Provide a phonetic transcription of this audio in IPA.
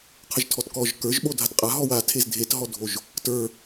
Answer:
qʰ ə ʒ tʰ ɔ t k ɔ ʒ k ə˞ ʒ ɓ o dʱ a t qʼ a ɦ ɔ w a tʰ e z dʱ e t ɦ ɔ dʱ o ʒ | t ə˞

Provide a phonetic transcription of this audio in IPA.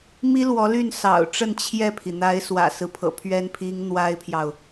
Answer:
m i˥ l w ɔ˧˥ l y˥˩ n s ɑ̰˨˩ ʊ̯ ʈ͡ʂ ə˥˧ n t͡ɕʰ j ɛ˥˩ pʰ i˩ n̪ a˧˥ ɪ̯ s w ä̰˨˩ s ɹ̩˦ pʰ ɤ̰˨˩ pʰ ɥ ɛ˥ n pʰ i˥ ŋ n̪ w a˥ ɪ̯ pʰ j ɑ˨ ʊ̯

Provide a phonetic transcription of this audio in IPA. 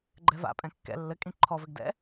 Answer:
ɡ͡ǃ ɛ v a̰ pʼ ɛ̃ kː ɛ̰ lː ɘ kʼ ĩ ǃʰ ɔ v ɘ ɡ d ɛ̰

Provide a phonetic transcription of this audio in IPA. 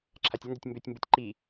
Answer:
ǁʰ a tʲ ə n d ʏ tʲ m b ʏ tʲ m b u tʲ ǃ i

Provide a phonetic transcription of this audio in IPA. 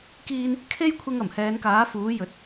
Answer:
k iː˥ n | kʰ e˥ j kʷʰ ɪ˧ ŋ ɐ˨˩ m h ɛː˨˧ n k aː˨˥ f uː˨˥ j ɵ˨˥ t̚

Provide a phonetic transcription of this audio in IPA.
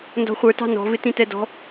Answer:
n d ɔ̤ χʷ ə˞ t ɑ̤ n ɔ̤ v ɪ t ĩ t ɛ d ɔ̤

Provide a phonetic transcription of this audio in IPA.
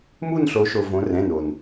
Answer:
m u˦˨ n ɬ o˩˧ ʃ o˩ v õ˩˧ r ɛ̃˩˧˩ n o˩ n

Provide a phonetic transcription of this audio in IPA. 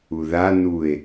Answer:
u ð a n u e̯

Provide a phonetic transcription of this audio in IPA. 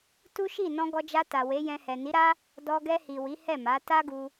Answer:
t u˦ ʃ i˦˨ n ɔ̃˧ ɡ ɔ˧ d͡ʒ a˧ t a˨ w e˨˦ j ɛ̃˧ h ɛ˨ n i˨˦ ɾ a˦ | d ɔ˧ ɡ ɛ˧ h i˨ w i˨˦ h ɛ˦˨ m a˨˦ t a˦ ɡ u˦

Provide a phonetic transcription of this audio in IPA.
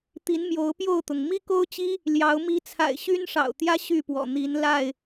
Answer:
t̪ i˨˦ n m j o˨˦ ʊ̯ p j o˥˨ ʊ̯ t̪ ʊ˩ ŋ m i˦ k o˦ ʊ̯ t͡ɕ i˦ | l j ɑ˨˦ ʊ̯ m i˨˦ t͡sʰ a̰˨˩ ɪ̯ ɕ y˦ n ʂ ɑ̰˨˩ ʊ̯ t̪ j ä˦ ɕ y˥˨ p w ɔ̰˨˩ n̪ i˨˦ n l a˥˨ ɪ̯

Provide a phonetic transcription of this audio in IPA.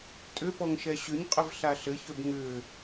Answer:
tʼ ʏ p ɔ ŋ ʃ ɛ ɕ ʏ ɲ qʼ ʏ v ɬ a ɬ ɘ ç ø b ŋ ʏ

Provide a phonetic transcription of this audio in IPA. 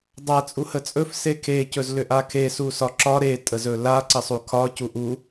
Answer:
dˤ a t͡sʼ u h ə t͡sʼ ɵ f s e kʰ e c ɵ z l ʏ ʔ a kʰ e s u s ɒ ǁ ɒ ɾ e tʼ ə z ɵ l a ǀ ə sˤ u kʰ ɒ c u ʔ u

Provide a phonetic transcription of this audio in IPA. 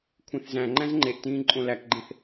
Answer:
kʷʰ ẽ θ z æ̃ ŋ͡ǃ æ̃ z ŋ͡ǃ e ʔ t ĩː ǃʼ õ l æ k ɡ͡ǃ ẽ θ

